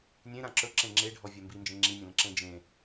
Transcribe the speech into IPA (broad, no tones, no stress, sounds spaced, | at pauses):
nʲ ẽ ɾ ã ǁ ɵ ǁ ẽ ŋ͡ǁ e ɖʱ ɔ vʲ a m b i n d͡ʒ ẽ ŋ͡ǁ i nʲ ə̃ l ə̃ ǁ ẽ d͡ʒ ẽ